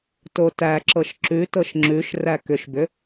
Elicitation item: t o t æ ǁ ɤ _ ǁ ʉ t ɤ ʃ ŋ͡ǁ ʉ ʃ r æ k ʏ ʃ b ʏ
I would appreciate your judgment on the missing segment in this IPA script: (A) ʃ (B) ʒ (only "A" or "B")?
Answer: A